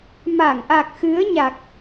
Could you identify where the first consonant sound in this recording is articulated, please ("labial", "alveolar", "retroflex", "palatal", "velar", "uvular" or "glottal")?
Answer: labial